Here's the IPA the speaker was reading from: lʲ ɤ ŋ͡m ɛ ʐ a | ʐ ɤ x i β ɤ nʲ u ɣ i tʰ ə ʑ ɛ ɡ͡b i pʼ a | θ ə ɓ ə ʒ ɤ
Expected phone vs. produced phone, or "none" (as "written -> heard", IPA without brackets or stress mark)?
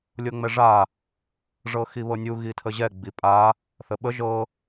none